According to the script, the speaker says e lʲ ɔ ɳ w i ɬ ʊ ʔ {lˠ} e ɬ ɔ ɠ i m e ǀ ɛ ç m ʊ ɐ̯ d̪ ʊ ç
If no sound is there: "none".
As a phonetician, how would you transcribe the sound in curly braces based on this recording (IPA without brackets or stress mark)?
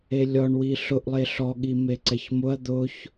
lˠ